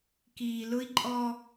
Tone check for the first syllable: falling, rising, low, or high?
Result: low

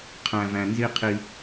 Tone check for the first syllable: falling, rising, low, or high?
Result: low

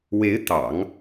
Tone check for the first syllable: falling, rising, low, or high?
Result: rising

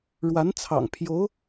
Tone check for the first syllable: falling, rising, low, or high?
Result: rising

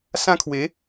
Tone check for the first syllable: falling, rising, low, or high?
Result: high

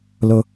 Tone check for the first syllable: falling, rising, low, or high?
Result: high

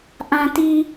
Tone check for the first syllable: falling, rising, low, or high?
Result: low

